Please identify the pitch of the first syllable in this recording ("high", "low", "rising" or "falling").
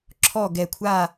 falling